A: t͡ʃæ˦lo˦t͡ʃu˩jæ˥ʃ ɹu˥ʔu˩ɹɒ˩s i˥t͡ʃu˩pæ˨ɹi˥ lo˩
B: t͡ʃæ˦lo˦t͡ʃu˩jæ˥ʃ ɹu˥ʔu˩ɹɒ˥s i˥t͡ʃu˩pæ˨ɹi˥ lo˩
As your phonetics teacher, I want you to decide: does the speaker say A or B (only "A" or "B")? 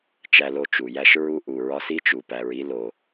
B